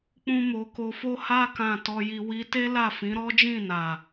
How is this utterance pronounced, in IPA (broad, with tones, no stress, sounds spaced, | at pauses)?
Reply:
k͡p ũ˧ m o˨ k o˧ f o˧ h a˧ k ã˨ t ɔ˧ j i˧ w i˧ t e˦ l a˦˨ f ĩ˨˦ ɾ ɔ˦ d͡ʒ ĩ˦˨ n a˨